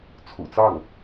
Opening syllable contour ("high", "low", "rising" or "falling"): low